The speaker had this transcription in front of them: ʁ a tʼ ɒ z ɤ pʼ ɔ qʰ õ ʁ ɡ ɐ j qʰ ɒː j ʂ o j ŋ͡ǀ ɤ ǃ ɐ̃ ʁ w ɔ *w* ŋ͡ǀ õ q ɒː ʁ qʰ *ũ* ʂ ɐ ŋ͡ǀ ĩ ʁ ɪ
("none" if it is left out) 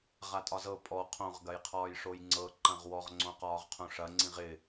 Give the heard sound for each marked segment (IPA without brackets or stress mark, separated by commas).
ʁ, õ